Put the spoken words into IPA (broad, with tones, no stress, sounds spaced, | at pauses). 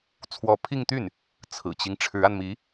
t͡sʰ w ɔ˧˥ pʰ i˥˧ ŋ t̪ y˥˩ n | t͡sʰ ɹ̩˨˩ t͡ɕ i˦ ŋ ʈ͡ʂʰ ɻ̩˧˥ a˧ n m i˧˥